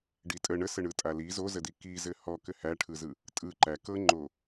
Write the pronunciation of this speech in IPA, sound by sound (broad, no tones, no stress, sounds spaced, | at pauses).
ɖ i tʼ ə ɳ ə s ɘ ɳ ɯ tʼ a l i z o z ə d i k i z ɘ h ɔ k ɘ h æ ʈʰ ɯ z ɯ | tʼ ɯ ǃ æ k ɤ ŋ͡ǃ o